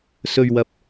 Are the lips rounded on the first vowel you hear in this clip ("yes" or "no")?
yes